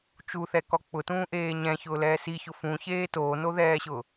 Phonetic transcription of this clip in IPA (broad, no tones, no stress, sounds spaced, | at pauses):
t͡ʃ u θ ɛ k ɔ k͡p ʊ t ũː ʔ eː ɲ ɛ̃ ç ʊː l ɛː s i ç ʊ f ũ ç eː t oː n o ð ɛː ɕ ʊː